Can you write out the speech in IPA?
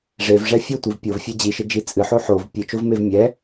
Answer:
ʐevʐɛ fʲotʷiv pʲovfʲɛ d͡ʑiʃɘd͡ʒi t͡sʼɨħo ħov pʲɨt͡ʃovmev mʲɛ

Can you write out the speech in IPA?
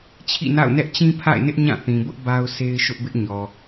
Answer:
t͡ɕʰḭ˦˨na̰˦˨ʊ̯nɛ˦ʔ t͡ɕĩ˦pʰa̰˦˨ɪ̯nɪ˦ʔ ɲã˦˨θĩ˨bʊ˦ʔ ba˦ʊ̯sʰe˦ɪ̯ʃʊ˦ʔbɪ˦ʔ ɲɔ˨

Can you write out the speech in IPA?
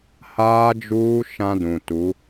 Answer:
haː˦d͡ʒuː˦ ʃã˦dũ˨ tu˨˦

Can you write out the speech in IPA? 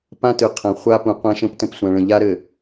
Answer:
pã˦tɯ˨ qʰɐ̃˨χʷa˦pũ˨ qʷã˦ʃə̃˦ptə̃˦˨p sʷã˨ɭə̃˨ʎa˦ ɾɘ˨

